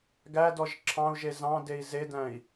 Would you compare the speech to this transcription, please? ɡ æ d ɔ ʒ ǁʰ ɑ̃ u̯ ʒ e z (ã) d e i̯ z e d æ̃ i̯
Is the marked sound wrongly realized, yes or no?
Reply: yes